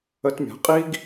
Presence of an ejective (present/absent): present